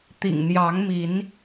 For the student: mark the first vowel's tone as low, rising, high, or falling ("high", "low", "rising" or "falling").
low